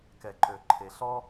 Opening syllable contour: low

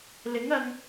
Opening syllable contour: rising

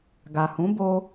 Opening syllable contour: low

